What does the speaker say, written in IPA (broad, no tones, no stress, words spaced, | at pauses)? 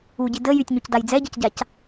uɟi də jytʲɲucdaj d͡zɛɟɤcɟac